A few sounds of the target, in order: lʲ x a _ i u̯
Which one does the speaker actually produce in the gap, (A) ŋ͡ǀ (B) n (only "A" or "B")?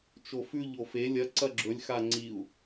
A